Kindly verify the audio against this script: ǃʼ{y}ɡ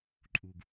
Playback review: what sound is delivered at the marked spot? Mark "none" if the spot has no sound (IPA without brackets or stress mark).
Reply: u